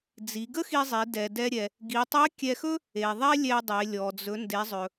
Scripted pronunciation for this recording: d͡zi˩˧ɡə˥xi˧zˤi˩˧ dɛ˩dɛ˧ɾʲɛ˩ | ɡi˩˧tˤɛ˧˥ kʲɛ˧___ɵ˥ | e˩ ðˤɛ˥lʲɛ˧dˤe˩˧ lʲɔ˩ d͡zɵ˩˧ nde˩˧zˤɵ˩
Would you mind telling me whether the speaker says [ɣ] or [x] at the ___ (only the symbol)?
x